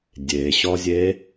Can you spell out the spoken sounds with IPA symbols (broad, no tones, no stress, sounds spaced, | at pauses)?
dʲ e ɕ ɔ zʲ e